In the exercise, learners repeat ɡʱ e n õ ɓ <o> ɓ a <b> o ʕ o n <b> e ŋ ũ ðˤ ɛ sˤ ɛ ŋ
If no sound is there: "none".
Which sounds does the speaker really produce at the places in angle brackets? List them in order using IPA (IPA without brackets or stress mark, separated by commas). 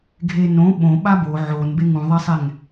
õ, b, b